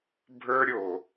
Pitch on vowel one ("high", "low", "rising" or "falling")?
high